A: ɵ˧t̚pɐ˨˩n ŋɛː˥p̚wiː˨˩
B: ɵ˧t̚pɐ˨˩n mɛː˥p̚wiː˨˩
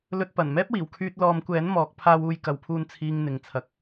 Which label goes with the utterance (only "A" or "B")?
B